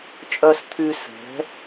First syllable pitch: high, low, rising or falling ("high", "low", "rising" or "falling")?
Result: low